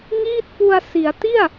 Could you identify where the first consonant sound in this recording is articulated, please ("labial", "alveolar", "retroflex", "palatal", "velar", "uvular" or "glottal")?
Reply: velar